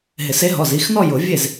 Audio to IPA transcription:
ɦ ɪ˨˩˦ s e˨˥ ɦ ɔ˩˧˩ z i˩˧˩ x n ɔ˥˧ j ʊ˨˩˦ vʲ e˥˩ z

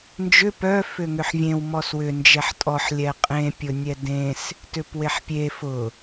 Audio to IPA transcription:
n d͡ʒ ʏ p œ f ʏ ŋ ʏ ħ vʲ ẽ w m ɔ s w ʏ n d͡ʒ ɛ ħ tʼ ɔ ħ lʲ ɛ qʼ ẽ pʲ ʊ nʲ ɛ d ẽ s | t ʏ p w e ħ pʲ e f ʊ

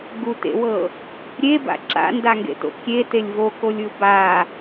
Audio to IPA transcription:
ɡ u t ḛ w ɤ | ɾʲ e b a̰ ǁ a̰ n d a ŋ ɡ ḛ t o̰ kʲ e t e lʲ v o k o lʲ ɯ b a

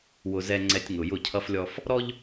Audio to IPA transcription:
w ʊ˨ z ɛ˨ ŋ͡ǀ ɛ˨ tʲ ŋ ʊ˨ j ʊ˦˨ cʰ ʌ˦ f lʲ ɔ˦ f | ɾ ɔ˦ ʎ

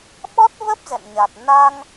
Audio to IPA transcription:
ɓ ɔ˦˥ t̚ v ə˦˥ p̚ z ɛ̰˧˨ n ɲ a˨˩ t̚ n a˧ ŋ

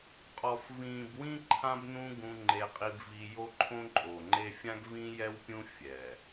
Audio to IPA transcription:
qʼ ɔ˨ f v ĩː˨ b w ĩ˦ ǃʰ ã˦ b n ũ˦ ɡ ũ˦ ŋ͡ǃ e˦ qʼ i˦ b v i˦ j o˦ ǃʰ õ˦ ǃʼ o˨ ŋ͡ǃ e˦ fʲ ã˦ ɡ v ĩ˦ j ɛ˦ w pʲ ũ˦ fʲ ɛ˨

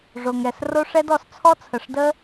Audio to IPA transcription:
ʐ o˨ ŋ ɛ˨ s r o˦ ʂ ɛ˦ d ɔ˨ s t͡sʰ ɔ˦ t͡sʰ ə˨ ʂ d ə˦

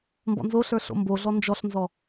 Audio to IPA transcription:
m b ɔ̰ n z o ɬ ə˞ ɬ o̰ m b o ɮ ɔ n d͡ʒ ɔ ɬ n z ɔ

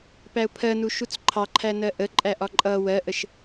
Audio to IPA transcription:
p æ ʊ̯ pʰ ɜ n u ʃ u t͡s ǃʰ ɑ ǃʰ æ n ɜ ʔ ə ǃʼ æ ʔ ɒ ǃʼ ʌ w ɜ ʔ ə ʃ

